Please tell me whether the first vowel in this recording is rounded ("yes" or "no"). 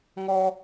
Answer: yes